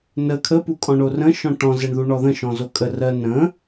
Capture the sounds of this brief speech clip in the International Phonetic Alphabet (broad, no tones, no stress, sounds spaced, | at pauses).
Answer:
n ə kʰ ə p u kʼ ɔ̃ ɳ o r ə̃ ʃ ɔ̃ ʈ ɔ̃ z ɛ ɳ ð u ɳ ɔ ð ə̃ ʃ ɔ̃ z o kʼ ə r ɜ n ə̃